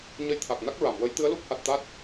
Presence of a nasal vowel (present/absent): absent